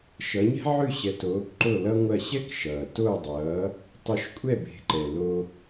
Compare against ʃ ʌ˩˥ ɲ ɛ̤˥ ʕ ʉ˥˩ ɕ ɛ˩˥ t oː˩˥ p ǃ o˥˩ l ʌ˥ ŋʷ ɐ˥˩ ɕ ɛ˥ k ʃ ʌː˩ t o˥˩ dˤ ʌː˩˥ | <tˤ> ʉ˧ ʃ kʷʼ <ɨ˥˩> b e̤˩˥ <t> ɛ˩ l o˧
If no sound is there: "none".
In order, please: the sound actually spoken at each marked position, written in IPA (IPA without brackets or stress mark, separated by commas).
tˤ, ɛ˥˩, ǃ